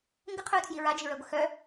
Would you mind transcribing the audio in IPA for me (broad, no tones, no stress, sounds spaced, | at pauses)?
ŋ ɡ ə qʰ œ ʊ̯ tʰ j i ɹ a d͡ʒ i ɹ œ ɡʷ ə x œ